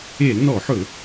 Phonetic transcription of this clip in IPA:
e˧˩˧ l n ɔ˧˩˧ ħ ɵ˧˩˧

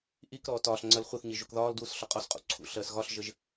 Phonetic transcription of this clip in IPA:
ʔ i k ɾ ɔː t ɒː ɬ ŋ͡ǀ ɜ l χʷ i θ ɲ i ʒ u k ð ɒː l d w u s ɬ ɒ qʼ ɔ s qʼ ṵ ǀʰ ṵ ɬ ɜ s ɣ ɒ ɬ ʒ ə ʒ

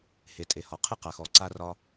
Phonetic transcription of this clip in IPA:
h e˩ tʼ e˩ h ɒ˩ qʰ ɨ˥ q a˩ x ɔ˩ ǀ a˥ r ɒ˥

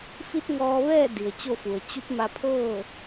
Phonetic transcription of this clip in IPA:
f i˧˥ t̚ ŋ ɔː˧ ʋ ɛː˥˨ d i˩ ə̯ t͡ɕ o˥˨ f u˩ ə̯ t͡ɕ u˧˥ p̚ m a˧ pʰ ɤː˥˨

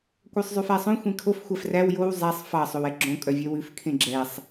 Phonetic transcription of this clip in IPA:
kʷ œ sˤ zˤ ʉ f æ sˤ õ xʷ ẽ kʰ o f xʷ æ f r æ w j o w zˤ æ sˤ f ɑ sˤ o w ɛ ɡ͡ǁ õ kʼ œ vʲ œ w ʉ f kʰ ẽ ɡ͡ǁ ɛ sˤ

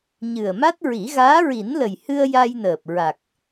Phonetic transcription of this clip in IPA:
ɲ ɨ˨˩ ə̯ m a˦˥ t̚ ɹ i˨˩˦ ɣ aː˧˥ ɹ i˨˩˦ n l ə˨˩ j h ɨ˧ ə̯ j a˧ j n əː˨˩ p̚ ɹ a˨˩ k̚

